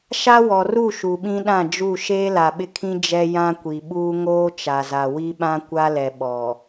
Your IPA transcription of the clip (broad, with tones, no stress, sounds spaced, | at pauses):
ʃ a˦ w ɔ˨ r u˦˨ ʃ u˨ ɓ ĩ˦ ɗ ã˦˨ d͡ʒ u˦˨ ʃ eː˦ l a˨ ɓ ɪ˦ kʰ ĩ˦ d͡ʒ ɛ˦ j ã˦ kʷ i˨ ɓ uː˦ ŋ oː˦ t͡ʃ a˨ z a˨ w i˦ ɓ ã˦ kʷ a˦ l ɛ˨ ɓ ɔ˨